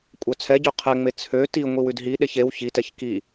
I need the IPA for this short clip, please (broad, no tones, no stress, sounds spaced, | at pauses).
kʷʼ œ t͡sʰ ɛ ɟ ø qʰ ɛ ŋ͡m e t͡sʰ ø t i ŋʷ i w ʉ d ɦ i ɗ e ç e w ç i t ɛ ç k i